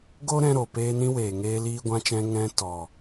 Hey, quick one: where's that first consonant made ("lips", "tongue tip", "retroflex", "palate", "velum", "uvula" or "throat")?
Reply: velum